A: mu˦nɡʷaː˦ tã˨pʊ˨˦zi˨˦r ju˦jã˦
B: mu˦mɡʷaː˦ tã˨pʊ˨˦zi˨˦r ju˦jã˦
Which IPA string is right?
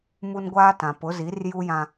A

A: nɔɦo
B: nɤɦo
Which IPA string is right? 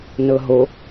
B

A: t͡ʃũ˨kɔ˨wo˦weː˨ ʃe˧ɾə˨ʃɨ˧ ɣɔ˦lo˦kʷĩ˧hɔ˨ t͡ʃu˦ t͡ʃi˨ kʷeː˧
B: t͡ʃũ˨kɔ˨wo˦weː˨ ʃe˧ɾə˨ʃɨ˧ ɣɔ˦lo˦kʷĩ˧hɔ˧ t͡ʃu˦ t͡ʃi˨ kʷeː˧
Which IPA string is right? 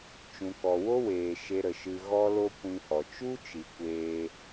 A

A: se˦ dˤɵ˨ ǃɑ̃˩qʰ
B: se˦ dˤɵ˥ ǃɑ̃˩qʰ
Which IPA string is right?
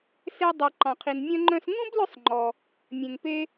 A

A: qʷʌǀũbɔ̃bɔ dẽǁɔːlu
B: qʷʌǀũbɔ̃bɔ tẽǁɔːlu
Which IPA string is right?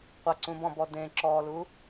A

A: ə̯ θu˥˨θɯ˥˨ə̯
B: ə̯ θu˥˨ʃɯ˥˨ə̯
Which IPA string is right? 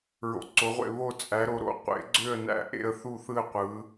A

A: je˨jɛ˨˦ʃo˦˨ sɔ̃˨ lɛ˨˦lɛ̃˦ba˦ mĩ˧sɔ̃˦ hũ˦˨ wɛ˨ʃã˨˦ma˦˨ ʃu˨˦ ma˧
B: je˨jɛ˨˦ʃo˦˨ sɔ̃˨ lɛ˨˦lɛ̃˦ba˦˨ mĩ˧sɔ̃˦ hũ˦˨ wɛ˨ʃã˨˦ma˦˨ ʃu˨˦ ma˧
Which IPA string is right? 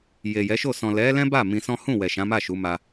B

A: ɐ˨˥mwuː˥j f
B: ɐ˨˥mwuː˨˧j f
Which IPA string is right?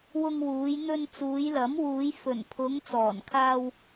B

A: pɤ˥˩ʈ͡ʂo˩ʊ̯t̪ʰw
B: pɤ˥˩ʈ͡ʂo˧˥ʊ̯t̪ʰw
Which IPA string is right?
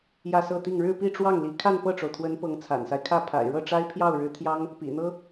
A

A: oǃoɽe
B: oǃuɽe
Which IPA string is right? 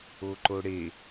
A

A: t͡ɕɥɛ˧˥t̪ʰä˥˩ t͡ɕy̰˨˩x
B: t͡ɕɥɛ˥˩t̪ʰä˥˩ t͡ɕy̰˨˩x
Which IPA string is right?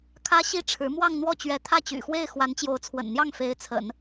A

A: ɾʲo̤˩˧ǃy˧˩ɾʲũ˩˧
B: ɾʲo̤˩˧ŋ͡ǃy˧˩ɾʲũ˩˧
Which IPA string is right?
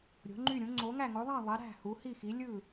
B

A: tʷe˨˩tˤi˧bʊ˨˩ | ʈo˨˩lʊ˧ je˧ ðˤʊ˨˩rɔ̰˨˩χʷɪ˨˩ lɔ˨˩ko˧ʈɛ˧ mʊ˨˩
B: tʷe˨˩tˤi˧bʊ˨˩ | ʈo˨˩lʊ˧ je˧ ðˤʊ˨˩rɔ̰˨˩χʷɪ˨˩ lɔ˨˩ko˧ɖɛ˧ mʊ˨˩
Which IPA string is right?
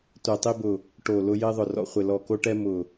A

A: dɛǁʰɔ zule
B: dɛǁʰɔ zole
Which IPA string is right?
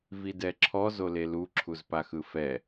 B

